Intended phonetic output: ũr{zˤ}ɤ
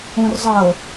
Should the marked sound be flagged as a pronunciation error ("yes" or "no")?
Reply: no